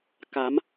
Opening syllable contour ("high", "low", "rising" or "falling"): rising